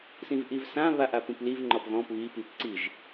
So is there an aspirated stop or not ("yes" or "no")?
no